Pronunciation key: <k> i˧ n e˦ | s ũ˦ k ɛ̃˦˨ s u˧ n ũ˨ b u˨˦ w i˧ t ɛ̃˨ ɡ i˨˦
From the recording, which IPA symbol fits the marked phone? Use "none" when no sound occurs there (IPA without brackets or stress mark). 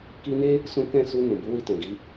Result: k